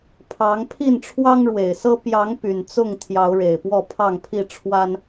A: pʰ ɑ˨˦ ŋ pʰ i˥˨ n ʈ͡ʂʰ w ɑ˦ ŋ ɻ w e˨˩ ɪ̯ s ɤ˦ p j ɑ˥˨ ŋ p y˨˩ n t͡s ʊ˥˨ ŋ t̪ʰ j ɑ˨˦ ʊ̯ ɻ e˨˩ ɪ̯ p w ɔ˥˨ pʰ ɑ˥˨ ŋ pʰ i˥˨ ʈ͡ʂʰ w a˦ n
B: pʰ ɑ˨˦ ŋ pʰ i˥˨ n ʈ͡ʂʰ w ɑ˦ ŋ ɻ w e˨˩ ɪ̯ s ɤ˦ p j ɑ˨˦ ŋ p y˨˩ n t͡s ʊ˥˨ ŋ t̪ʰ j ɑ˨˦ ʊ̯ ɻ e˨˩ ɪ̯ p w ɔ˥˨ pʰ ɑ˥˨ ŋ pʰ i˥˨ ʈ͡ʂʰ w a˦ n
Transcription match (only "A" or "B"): B